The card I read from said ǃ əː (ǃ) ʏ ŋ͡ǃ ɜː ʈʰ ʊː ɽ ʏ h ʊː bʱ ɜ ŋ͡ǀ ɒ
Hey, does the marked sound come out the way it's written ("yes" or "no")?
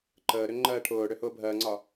no